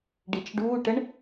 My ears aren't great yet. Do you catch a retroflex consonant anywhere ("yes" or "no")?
yes